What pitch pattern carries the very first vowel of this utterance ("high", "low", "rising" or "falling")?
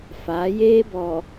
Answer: rising